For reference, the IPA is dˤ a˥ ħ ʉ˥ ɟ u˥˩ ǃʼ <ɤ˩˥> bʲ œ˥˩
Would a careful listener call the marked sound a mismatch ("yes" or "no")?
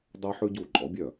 yes